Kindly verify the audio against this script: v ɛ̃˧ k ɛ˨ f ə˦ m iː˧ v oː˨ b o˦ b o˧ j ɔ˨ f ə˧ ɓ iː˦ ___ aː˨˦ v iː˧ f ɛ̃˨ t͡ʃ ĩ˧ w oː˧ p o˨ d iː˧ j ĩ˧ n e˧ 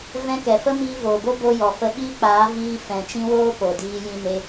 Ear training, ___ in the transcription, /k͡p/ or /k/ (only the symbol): k͡p